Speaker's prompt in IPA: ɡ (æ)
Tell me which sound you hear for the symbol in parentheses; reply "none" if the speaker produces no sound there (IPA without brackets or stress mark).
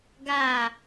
a